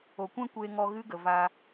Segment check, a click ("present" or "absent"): absent